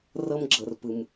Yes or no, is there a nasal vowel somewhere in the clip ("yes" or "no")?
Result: no